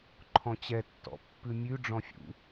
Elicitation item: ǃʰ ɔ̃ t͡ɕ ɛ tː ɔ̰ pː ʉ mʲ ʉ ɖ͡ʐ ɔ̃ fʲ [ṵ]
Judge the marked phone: correct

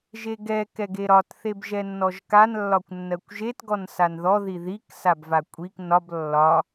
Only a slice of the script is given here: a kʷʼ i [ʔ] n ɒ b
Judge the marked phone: incorrect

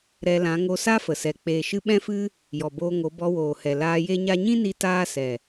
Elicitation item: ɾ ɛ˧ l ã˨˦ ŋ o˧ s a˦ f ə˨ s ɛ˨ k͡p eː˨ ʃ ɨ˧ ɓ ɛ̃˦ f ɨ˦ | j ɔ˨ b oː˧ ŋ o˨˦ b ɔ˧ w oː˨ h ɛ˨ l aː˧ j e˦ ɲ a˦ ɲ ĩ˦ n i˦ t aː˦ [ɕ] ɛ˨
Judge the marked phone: incorrect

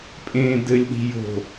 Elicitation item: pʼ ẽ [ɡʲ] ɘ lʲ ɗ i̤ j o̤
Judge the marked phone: incorrect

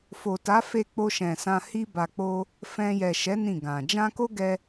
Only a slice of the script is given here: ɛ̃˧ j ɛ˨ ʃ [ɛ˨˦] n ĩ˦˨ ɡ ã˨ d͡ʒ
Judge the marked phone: correct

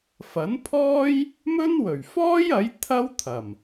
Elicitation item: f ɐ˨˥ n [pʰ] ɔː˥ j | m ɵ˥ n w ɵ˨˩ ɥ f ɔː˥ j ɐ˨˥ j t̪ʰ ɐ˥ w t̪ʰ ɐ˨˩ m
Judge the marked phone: correct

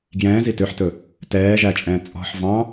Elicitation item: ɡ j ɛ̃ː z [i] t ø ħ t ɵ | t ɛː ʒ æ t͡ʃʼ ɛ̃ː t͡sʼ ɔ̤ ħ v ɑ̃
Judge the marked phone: correct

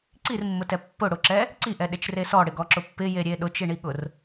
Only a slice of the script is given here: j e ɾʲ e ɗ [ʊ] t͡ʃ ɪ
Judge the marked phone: correct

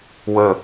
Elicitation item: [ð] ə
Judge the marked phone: incorrect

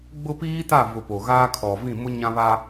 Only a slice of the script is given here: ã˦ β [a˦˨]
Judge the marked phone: incorrect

